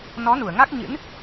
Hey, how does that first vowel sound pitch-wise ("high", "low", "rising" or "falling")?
rising